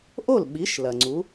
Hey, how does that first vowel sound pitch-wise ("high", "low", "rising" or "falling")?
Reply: falling